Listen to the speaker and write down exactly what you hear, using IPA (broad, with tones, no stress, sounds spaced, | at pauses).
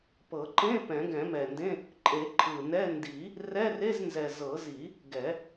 p ɤ˨˩˦ ǃ ẽ˧˥˧ p ɛ̃˨˩˦ ɡ ɛ̃˨˩˦ m ɛ˨˩ n d ẽ˧˥˧ | ǃʼ e˨˩˦ ǃʰ ɯ˨˩ n ɛ˧˥˧ n d i˨˩˦ | r ɛ˧˥˧ r e˧˥˧ z n z ɛ˨˩ z ɤ˨˩˦ z i˨˩˦ | ɡ ɛ˨˩˦